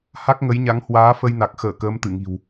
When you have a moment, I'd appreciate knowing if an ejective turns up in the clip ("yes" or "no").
no